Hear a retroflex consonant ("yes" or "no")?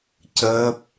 no